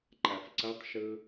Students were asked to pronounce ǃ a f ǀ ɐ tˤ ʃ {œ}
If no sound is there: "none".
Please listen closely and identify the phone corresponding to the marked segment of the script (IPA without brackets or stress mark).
ɵ